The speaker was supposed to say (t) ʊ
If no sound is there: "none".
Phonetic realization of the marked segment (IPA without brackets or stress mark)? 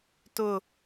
t